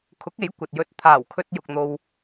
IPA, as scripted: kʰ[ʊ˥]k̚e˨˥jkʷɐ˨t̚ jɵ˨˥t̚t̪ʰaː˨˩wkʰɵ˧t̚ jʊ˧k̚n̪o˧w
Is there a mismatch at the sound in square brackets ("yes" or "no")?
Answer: yes